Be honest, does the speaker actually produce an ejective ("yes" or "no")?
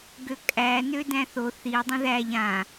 yes